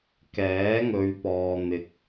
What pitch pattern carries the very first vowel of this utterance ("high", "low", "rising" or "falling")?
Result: rising